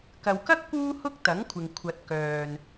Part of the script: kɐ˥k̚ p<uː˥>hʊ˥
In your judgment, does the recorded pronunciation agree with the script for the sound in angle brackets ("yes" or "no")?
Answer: yes